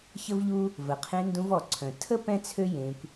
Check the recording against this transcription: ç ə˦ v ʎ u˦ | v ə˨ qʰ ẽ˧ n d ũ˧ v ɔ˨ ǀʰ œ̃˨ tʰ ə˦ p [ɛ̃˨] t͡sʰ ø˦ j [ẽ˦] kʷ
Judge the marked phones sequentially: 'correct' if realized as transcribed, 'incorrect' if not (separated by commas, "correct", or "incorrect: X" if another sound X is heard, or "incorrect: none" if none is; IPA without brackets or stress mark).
incorrect: ɛ̃˦, incorrect: ẽ˧